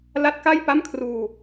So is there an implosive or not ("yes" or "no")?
no